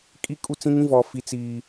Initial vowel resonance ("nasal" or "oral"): oral